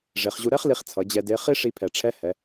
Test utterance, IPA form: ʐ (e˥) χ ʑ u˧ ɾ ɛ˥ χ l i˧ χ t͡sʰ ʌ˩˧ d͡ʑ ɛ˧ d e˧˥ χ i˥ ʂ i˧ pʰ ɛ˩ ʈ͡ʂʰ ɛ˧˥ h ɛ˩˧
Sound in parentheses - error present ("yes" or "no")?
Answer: yes